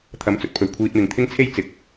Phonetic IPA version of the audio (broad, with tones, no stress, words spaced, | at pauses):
t̪ʰɐ˨˥mt͡sɵ˨t̚pʰɵ˨ɥ kʷʰiː˧t̚mɪ˨ŋ t̪ʰɪ˥ŋt͡sʰe˥j t͡sɪ˨k̚